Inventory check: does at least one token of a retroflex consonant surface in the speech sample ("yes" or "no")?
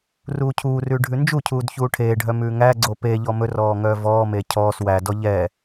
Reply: yes